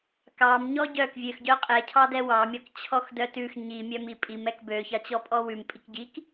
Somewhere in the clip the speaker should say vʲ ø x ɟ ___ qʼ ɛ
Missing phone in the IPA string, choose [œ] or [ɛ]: œ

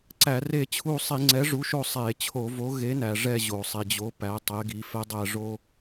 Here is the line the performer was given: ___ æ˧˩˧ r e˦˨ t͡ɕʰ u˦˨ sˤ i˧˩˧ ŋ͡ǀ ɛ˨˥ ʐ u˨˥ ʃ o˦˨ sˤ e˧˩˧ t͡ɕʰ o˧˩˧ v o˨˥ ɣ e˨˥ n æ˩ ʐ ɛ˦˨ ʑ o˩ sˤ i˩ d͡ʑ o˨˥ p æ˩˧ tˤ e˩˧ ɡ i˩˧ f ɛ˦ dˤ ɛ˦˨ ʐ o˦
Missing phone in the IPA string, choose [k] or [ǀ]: ǀ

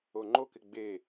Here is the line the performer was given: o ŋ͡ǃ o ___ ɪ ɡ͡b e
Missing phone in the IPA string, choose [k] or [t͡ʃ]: k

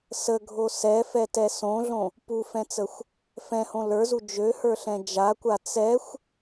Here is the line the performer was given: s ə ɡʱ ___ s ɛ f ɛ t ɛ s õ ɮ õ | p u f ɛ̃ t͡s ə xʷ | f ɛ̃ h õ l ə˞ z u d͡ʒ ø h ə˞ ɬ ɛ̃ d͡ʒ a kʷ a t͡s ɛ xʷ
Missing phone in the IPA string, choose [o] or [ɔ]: o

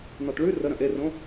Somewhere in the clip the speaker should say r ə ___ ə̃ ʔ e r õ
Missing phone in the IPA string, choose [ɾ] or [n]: ɾ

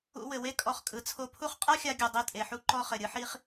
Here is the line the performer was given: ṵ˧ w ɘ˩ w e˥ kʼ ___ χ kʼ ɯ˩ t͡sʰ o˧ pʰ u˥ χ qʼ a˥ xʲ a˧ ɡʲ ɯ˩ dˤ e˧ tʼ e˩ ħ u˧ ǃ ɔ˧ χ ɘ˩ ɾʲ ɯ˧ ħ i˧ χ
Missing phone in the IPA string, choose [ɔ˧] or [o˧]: ɔ˧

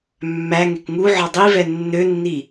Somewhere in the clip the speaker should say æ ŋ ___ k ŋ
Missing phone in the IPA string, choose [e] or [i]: e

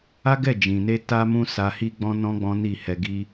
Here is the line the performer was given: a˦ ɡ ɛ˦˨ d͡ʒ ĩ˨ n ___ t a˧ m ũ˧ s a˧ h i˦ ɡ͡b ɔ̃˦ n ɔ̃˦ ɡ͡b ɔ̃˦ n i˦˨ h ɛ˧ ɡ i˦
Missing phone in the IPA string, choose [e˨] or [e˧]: e˧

